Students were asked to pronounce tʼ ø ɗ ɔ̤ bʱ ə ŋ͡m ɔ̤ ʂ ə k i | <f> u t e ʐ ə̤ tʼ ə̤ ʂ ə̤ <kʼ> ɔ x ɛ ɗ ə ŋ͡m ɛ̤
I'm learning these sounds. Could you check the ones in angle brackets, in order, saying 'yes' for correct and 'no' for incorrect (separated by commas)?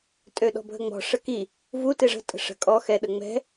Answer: no, yes